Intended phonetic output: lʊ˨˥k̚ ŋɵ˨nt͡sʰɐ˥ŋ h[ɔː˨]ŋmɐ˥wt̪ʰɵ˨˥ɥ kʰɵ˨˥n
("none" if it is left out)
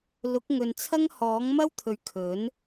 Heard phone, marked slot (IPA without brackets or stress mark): ɔː˨˥